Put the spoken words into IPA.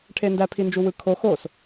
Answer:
ʈʰ e n d æ pʰ i n d͡ʒ u w ɯ kʰ o x o s

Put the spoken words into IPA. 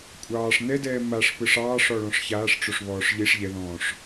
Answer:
kʷʼ ɑː ʂ n ɛ d ɛː m a ʂ p ɯ ʂ ɑː ʂ ɔ ɭ ɔ̃ ʂ ç aː ʂ ʈ͡ʂ o ʂ β ɔː ʂ ʎ i ʂ ʎ ɛ ð ɔ̃ː ʂ

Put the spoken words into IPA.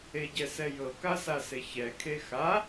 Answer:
e ɟ ɛ s ɛ j ɤ k a s a s e ç ɛ kʰ e x a

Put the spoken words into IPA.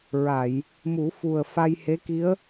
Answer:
ɹ a˨˩˨ j | m u˨˩˦ f u˨˩ ə̯ f a˧ j h e˧˥ k i˧˥ ə̯

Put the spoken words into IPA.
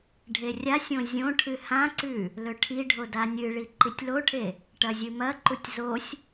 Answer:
ɖʱ e rʲ a sʲ õ zʲ õ ʈʰ ɨ h ã ǀ ʉ | l ɵ ʈʰ i ɖʱ o d a nʲ ɨ ɭ i ǃ i tʲ l o ʈʰ e | ʈ ɐ zʲ ɨ m ɐ ǃ u tʲ z o sʲ

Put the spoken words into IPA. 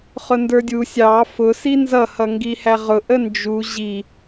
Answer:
χ ʊ n d ə˞ dʲ u sʲ ɑ f ʊ s i n z ʌ h ʌ ŋ ɡ i h æ ʁ ʊ ʔ ə n d͡ʒ u ʑ i

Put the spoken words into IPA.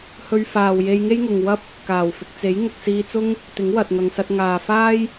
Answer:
h ɵ˧ ɥ f aː˨ w j e˧ j ŋ e˥ j ŋ ʊ˨ ŋ w ɐ˥ p̚ | k aː˨˩ w f ɪ˨ k̚ t͡s e˨˥ j ŋ ʊ˨ k̚ s iː˧ t͡s ʊ˥ ŋ | t̪ ɪ˨˥ ŋ w ɐ˨ t̚ ŋ ɐ˨ ŋ s ɐ˧ t̚ ŋ aː˨ f aː˥ j

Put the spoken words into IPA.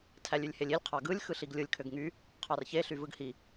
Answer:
tʰ æ lʲ y lʲ h e lʲ i lʲ qʰ ɑ ɡ ɯ lʲ x ɯ ɬ i ɡ lʲ ɯ lʲ kʰ ø ɡ ŋ y | qʰ ɑ r ç e ɬ y v ɯ ɡ h i

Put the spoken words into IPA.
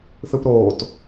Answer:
θ ɯ p ɾ oː t

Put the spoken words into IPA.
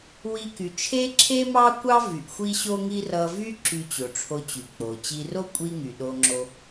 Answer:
w i˧ k y˩ t͡ʃʰ e˥ ǁʰ e˥ m ɑ˥ kʷ ɑ˥ v y˩ ʔ xʷ i˥ ɕ o˥ ŋ i˥ r ʌ˧ v y˥ ǁ y˧ t͡ɕ o˩ ʈ͡ʂʰ o˧ t͡ɕ y˩ k͡p o˩ t͡ɕ i˧ r o˥ kʷʼ i˥ ŋ y˩ ɗ o˧ ŋ͡ǁ o˧

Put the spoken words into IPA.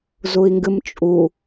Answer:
z u i̯ ŋ ɡ ɨ m t͡ʃʼ u

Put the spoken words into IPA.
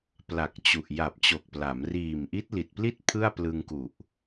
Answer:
p l a˨˩ k̚ t͡ɕ u˨˩ ʔ j a˨˩ p̚ t͡ɕ o˨˩ k̚ p l a˩˦ m r iː˨˩ m ʔ i˦˥ t̚ l i˨˩ t̚ p l i˥˩ t̚ pʰ ɯ˥˩ a̯ p l ɯ˧ ŋ k u˨˩ ʔ

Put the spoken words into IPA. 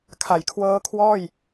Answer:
kʰ a˩˦ j kʰ w ɤː˦˥ kʰ w ɔː˥˩ j

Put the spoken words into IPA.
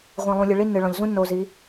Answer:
ʁʷ ĩ˨ lˠ ũ˨ lʲ ɨ˨ ɭ i˦ nː ɨ˨ ɭ ɔ̃˨ ʎ z ũ˦ nː o˨ z i˨˦

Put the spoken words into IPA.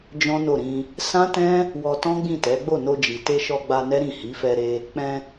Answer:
d͡ʒ ɔ̃˦ n o˦˨ ɾ ĩ˧ | s ã˦ t ɛ̃˦ | w ɔ˧ t ɔ̃˦ ɡ͡b ĩ˦˨ t ɛ˨˦ ɡ͡b o˦˨ n o˧ d͡ʒ i˨ t e˧ ʃ ɔ˧ ɡ͡b a˧ n ɛ˦ ɾ ĩ˦˨ h i˨˦ f ɛ˧ ɾ e˧ | k͡p ɛ̃˧

